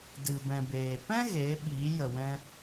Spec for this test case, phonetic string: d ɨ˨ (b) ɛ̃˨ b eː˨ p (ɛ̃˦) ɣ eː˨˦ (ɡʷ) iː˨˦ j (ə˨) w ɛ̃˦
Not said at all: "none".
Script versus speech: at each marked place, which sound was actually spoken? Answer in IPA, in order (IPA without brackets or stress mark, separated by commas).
b, ɛ̃˦, ɓ, ə˨